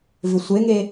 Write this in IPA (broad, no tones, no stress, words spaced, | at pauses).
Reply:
vɪsʷeŋe